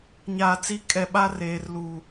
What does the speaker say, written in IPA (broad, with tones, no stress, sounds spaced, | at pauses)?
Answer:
ɲ aː˨ t͡s i˦ kʼ ɛ˨ ɓ a˦ r eː˨ r l uː˨